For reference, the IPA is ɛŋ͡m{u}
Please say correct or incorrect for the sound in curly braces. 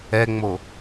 incorrect